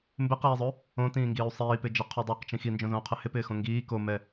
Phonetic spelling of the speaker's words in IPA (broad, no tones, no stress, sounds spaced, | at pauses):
m b ɪ q iː zˤ ɵ | õ t ĩː ŋ ɡ iː u̯ sˤ iː p ɪ d͡ʒ ɛ qʰ o dˤ o q t͡ʃ ĩ x i n d͡ʒ õ z õ u̯ qʰ ɪ h ɪ p ɪː x õ ŋ ɡ iː k o m ɛ